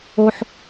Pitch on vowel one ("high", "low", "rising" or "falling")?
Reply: high